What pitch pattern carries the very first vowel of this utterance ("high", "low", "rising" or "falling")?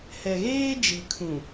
low